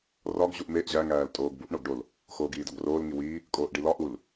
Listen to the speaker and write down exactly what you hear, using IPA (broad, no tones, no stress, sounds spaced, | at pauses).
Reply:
r ɒ ɡ ʑ u ʔ m e ʔ ʑ æ ŋ æː l tʼ oː ɡ b u ʔ ɳ o ɡ ɖ o l | x oː ɡ iː d ɒ ɡ r oː l ŋ i w iː | kʼ oː ʔ ɖ i l ɒ ʔ u l